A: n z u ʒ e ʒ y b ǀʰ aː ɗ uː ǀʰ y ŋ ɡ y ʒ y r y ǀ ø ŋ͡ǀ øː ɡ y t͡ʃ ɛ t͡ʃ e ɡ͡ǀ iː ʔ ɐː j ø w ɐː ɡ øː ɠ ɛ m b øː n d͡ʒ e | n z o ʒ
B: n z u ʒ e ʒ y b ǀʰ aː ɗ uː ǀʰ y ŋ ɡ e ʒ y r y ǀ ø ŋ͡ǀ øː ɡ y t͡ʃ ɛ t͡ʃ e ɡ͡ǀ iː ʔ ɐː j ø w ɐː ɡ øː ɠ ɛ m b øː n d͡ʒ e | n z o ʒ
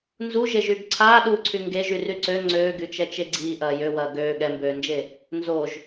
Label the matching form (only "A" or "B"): B